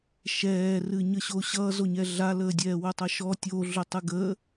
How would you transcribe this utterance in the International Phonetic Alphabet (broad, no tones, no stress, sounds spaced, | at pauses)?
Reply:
ʃ ɛː r ɨ ɲ ə ɕ o ɕ ʌ z o ɲ ɛ ɮ a l əː dʲ ɛː w ʊ tˤ ʌ ʃ ɔ tʲ o ɮ ʊ tˤ ɯ ɡ ə